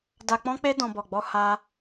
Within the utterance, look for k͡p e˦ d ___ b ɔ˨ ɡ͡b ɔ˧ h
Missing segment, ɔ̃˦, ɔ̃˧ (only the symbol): ɔ̃˧